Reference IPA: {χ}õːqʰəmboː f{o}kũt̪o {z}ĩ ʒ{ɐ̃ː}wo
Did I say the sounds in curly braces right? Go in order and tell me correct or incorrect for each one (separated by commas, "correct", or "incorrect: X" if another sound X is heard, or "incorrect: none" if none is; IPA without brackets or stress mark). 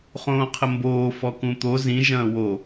correct, incorrect: ɔ, correct, correct